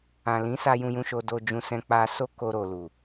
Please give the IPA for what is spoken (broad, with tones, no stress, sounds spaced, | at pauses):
ã˨ l ĩ˨˦ s a˧ j ũ˧ j ũ˧ ʃ o˧ d o˧ d͡ʒ ũ˧ s ɛ̃˧ k͡p a˦ s o˦ k o˧ ɾ o˨ l u˨